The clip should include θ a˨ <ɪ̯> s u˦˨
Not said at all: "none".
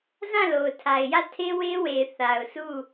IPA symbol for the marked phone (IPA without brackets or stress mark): ʊ̯